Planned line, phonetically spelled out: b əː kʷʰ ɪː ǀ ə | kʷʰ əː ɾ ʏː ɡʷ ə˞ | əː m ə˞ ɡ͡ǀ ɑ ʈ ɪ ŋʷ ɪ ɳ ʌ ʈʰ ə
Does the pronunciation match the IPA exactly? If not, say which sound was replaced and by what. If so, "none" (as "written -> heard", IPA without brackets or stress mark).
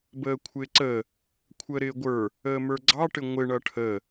ʏː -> ɪː